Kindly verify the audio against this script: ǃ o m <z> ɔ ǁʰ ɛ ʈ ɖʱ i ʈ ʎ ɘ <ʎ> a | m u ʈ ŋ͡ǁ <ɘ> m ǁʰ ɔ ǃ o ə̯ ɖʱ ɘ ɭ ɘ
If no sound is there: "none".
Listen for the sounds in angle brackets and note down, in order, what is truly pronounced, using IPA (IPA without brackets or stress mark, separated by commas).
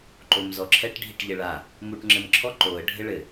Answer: z, ɭ, ɘ